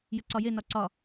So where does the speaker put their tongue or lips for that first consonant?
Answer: palate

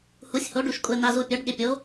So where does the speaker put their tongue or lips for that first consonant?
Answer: throat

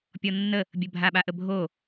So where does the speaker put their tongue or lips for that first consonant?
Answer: lips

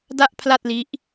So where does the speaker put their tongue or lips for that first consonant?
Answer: tongue tip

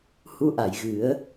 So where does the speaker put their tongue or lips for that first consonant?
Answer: throat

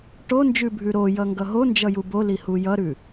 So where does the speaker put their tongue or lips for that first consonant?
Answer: retroflex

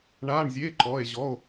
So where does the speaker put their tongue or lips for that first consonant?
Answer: retroflex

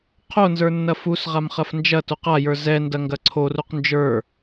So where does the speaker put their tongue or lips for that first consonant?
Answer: uvula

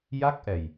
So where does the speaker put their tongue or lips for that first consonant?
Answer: palate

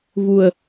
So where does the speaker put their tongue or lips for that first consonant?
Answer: lips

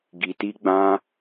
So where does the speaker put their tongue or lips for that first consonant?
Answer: velum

